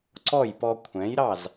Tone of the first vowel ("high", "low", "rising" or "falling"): falling